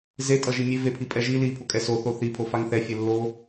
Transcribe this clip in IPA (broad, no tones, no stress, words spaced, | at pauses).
ze tʼʌʒimʲe vepʰipʼɛʒi li pʰokʼɛso θoθi pʰofaŋθɛ fʲelːo